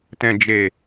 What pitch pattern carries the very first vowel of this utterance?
low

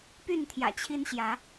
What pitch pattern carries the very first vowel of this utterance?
falling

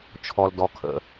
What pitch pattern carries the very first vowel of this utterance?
low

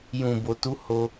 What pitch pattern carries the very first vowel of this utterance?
low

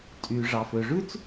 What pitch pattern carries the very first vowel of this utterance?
low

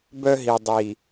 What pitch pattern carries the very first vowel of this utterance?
high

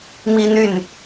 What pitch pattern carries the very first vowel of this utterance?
high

